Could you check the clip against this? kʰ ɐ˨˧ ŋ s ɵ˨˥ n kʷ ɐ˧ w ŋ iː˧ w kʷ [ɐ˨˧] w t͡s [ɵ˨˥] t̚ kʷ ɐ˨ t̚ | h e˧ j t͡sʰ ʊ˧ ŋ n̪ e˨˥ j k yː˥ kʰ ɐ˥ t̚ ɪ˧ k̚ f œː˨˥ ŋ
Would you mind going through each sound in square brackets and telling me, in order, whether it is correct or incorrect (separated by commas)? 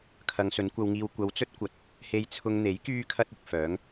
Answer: correct, incorrect